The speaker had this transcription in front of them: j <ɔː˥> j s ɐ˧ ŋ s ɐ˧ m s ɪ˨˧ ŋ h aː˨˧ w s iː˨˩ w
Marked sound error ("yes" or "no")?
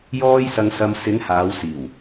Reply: no